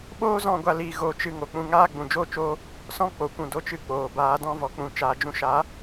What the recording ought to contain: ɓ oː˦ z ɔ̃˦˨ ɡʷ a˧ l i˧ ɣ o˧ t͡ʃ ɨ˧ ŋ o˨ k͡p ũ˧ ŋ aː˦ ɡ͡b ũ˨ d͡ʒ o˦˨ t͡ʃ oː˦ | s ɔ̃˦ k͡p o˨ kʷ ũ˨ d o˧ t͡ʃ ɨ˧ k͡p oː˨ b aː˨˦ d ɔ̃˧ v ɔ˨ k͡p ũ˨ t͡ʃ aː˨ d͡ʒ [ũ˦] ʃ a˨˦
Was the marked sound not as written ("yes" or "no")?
yes